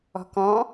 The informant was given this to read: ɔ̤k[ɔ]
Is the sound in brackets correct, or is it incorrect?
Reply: incorrect